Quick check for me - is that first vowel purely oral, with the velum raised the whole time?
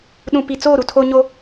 no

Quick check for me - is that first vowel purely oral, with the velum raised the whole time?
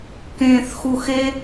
no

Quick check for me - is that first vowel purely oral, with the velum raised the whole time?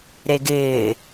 yes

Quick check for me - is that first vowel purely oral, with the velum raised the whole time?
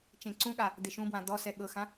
no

